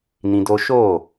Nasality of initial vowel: nasal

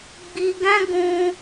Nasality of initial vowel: oral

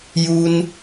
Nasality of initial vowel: oral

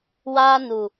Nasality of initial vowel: oral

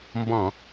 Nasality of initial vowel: nasal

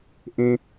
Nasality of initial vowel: nasal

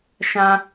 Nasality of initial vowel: nasal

